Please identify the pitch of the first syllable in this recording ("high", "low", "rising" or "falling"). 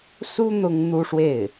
high